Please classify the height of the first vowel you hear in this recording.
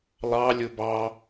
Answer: low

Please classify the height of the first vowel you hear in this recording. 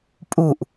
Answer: high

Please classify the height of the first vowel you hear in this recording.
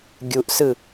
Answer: high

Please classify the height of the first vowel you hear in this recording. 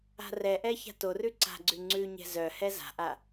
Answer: low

